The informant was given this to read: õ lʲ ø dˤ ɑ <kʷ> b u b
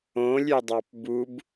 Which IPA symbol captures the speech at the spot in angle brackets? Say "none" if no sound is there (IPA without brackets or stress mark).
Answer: p